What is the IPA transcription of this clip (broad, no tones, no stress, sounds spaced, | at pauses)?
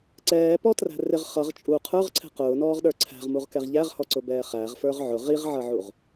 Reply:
ǀ ɛː p ɔ t r æ̤ r ɪ ʁ χ ʌ ʁ t͡ʃʼ u qʰ ə˞ ʁ ǀʰ ɛ̤ q ʊː n ɔː ʁ ɗ ə˞ ǀʰ æ̤ ʁ m u ʁ k ɛ ʁ ʎ æ ʁ h ɔ ǀ ʊ b ɛː χ æ ʁ f ə˞ ʁ ʕ ʊ ʁ i ʁ ʕ ʌ ʕ u ʁ